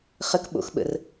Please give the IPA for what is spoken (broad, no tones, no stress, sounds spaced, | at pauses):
χ ə k ɓ o̰ x ɓ ə̰ r